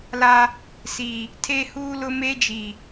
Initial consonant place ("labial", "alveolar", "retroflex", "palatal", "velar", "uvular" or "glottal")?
alveolar